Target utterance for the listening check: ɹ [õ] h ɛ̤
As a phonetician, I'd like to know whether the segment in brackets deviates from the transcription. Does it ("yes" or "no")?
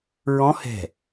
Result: yes